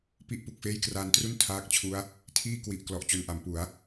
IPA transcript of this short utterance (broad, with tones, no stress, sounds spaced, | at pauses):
p i˥˩ ʔ p u˨˩ k̚ f eː˥˩ j k r aː˧ n t r u˥˩ n tʰ aː˦˥ k̚ t͡ɕʰ u˦˥ a̯ | tʰ iː˥˩ k w i˨˩ ʔ k l ɔ˨˩ ʔ t͡ɕ o˨˩ n ʔ a˩˦ m p u˩˦ a̯